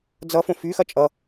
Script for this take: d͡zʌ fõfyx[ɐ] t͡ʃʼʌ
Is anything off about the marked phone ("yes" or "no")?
no